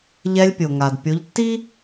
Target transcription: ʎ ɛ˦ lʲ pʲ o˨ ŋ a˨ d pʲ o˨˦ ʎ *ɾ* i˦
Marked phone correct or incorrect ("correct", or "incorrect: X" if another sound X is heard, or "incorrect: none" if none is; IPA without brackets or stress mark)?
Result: incorrect: tː